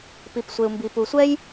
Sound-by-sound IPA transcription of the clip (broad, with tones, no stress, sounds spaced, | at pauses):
p i˨ p sʷ e˨ u̯ m b i˨ p u˨ sʷ ɛ˥ j